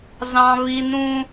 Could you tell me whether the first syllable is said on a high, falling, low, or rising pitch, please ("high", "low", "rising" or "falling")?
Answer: high